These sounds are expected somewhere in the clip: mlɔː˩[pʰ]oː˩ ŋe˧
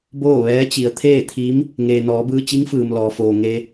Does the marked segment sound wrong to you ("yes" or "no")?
yes